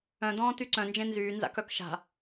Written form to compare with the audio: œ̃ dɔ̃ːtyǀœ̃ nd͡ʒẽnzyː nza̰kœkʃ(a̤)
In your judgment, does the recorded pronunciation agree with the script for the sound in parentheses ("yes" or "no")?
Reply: yes